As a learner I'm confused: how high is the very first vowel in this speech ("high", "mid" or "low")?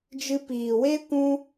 high